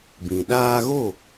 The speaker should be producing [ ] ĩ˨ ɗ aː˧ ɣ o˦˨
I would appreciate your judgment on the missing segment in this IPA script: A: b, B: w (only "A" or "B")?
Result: A